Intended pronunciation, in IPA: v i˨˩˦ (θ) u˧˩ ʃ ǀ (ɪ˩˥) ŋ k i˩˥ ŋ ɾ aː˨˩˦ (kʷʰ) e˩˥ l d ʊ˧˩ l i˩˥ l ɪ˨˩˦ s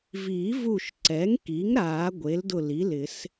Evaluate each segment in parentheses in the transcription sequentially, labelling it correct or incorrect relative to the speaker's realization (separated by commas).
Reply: incorrect, incorrect, incorrect